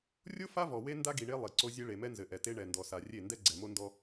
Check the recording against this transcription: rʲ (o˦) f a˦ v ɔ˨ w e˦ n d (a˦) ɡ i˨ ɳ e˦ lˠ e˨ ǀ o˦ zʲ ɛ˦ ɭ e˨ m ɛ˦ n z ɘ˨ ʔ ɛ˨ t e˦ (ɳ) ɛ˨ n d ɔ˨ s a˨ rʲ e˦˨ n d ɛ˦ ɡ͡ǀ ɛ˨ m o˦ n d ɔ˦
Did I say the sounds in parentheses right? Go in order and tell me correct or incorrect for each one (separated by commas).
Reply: correct, correct, correct